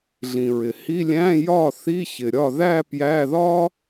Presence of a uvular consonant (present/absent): absent